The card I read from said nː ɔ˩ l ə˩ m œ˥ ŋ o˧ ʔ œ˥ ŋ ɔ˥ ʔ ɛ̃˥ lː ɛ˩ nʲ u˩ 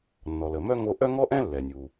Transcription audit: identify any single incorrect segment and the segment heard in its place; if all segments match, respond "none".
none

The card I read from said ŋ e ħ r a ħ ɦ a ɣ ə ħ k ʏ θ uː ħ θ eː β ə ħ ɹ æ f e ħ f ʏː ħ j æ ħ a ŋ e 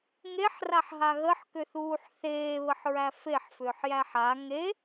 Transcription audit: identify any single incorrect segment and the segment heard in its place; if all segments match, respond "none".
none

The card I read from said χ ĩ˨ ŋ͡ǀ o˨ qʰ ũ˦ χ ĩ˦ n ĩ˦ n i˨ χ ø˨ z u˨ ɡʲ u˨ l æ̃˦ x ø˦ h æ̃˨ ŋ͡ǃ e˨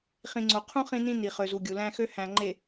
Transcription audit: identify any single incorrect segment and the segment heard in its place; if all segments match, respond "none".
none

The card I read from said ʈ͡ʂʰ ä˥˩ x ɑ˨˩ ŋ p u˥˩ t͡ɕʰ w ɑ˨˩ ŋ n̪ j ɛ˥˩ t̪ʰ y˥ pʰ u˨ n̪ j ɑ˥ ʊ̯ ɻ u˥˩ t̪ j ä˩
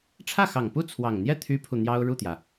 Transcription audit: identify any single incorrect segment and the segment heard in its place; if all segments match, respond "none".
t͡ɕʰ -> t͡sʰ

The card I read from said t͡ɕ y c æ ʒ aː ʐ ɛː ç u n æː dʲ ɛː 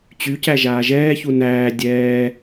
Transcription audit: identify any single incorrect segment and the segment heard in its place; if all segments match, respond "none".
ʐ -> ʒ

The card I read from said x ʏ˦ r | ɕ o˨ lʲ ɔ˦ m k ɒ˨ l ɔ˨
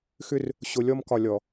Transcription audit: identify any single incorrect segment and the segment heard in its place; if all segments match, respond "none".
l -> lʲ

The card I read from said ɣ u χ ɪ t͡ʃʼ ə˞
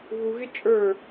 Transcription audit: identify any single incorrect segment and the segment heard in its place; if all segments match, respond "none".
χ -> ɣ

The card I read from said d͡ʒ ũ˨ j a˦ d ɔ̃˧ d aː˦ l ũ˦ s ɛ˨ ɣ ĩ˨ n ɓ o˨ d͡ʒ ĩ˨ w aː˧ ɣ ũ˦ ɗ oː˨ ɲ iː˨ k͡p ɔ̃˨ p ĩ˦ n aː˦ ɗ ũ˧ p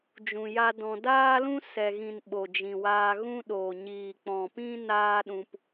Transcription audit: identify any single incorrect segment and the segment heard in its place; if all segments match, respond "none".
none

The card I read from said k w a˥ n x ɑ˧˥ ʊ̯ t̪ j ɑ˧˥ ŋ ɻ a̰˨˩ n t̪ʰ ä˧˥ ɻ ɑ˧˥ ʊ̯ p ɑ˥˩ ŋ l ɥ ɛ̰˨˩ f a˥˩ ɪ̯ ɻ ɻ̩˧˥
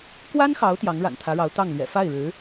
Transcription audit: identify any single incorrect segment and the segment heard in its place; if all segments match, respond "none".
p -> t̪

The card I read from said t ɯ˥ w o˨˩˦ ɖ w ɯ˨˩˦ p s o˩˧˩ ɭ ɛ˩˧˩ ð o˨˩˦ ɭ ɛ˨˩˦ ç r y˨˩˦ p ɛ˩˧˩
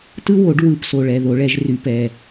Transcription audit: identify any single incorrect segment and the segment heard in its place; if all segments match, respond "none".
ç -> ʒ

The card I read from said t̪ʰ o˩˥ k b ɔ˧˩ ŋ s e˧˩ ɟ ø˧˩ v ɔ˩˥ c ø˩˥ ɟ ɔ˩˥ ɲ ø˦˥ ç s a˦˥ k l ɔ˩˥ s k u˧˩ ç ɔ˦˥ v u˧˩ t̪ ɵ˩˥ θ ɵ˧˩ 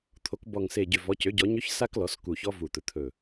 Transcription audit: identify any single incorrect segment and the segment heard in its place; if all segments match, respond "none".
θ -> t̪ʰ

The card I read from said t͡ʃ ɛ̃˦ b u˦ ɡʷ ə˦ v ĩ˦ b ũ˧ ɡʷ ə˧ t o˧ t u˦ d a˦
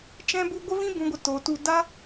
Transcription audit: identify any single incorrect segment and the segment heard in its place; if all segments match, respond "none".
none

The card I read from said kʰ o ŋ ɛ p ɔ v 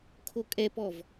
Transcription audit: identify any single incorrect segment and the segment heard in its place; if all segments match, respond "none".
ŋ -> kʼ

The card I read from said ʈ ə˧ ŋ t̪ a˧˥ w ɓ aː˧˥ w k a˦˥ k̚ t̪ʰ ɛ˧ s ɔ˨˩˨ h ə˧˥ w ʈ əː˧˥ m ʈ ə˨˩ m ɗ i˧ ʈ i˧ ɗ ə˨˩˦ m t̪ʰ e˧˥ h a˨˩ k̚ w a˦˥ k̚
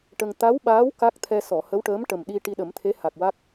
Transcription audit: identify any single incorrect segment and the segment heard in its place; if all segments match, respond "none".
none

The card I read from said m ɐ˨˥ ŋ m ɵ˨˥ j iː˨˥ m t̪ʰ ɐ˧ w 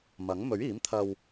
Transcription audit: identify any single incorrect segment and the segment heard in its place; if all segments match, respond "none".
j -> ɥ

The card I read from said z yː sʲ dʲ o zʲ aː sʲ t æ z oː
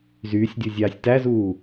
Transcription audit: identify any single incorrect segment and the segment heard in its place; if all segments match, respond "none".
oː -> uː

